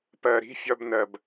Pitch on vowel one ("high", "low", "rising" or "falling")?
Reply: low